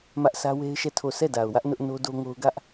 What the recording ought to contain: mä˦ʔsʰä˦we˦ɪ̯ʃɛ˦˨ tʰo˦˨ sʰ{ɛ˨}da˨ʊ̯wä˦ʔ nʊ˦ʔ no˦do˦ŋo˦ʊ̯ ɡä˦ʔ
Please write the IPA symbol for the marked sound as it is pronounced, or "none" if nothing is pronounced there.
ɛ˦˨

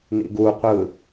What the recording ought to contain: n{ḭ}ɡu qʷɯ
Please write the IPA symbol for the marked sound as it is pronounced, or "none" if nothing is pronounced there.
ḭ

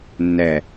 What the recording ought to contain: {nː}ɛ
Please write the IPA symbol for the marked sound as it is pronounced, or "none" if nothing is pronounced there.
nː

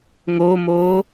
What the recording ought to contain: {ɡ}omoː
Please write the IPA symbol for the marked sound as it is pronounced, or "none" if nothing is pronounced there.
ŋ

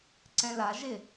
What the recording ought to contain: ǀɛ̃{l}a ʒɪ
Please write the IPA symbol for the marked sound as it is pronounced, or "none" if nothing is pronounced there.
l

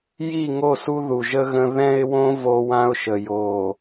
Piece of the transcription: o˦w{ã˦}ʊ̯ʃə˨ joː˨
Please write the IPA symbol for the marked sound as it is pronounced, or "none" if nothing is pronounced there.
ã˦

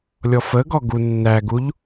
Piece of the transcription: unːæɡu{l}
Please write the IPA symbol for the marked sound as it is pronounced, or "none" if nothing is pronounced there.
ʎ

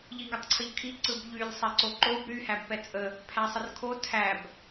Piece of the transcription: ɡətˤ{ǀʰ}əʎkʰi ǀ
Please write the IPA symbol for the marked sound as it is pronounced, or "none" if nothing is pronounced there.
ǀʰ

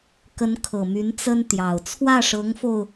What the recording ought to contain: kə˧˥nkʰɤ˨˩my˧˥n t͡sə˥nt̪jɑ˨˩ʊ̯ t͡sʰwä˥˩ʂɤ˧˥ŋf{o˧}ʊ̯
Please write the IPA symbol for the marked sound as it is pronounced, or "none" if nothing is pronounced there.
o˧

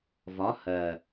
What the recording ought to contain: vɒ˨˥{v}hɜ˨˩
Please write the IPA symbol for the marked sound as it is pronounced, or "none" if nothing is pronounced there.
none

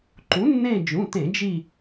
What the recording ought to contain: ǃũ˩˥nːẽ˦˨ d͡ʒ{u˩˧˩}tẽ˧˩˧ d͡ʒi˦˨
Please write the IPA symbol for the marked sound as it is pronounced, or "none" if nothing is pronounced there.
ũ˩˧˩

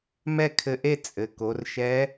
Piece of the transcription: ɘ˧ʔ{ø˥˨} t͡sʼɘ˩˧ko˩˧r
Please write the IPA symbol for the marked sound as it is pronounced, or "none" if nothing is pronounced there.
e˥˨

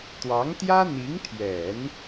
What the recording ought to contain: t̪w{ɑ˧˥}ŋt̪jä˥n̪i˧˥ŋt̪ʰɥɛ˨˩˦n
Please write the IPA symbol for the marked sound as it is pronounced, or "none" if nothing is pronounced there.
ɑ˧˥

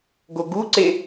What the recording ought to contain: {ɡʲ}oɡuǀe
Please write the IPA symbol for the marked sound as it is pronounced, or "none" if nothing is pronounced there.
ɡ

